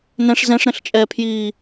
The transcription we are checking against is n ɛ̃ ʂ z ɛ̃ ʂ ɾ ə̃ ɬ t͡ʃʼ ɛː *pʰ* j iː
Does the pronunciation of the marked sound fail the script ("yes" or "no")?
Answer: no